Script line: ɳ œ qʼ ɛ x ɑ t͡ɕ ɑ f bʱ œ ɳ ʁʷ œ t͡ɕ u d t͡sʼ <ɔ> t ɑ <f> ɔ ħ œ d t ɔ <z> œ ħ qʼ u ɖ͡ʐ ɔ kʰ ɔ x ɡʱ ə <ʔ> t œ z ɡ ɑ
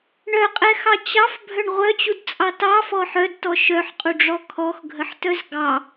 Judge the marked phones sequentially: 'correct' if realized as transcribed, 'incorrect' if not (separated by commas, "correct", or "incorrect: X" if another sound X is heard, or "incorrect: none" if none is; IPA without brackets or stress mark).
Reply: incorrect: ɑ, correct, incorrect: ʃ, incorrect: ħ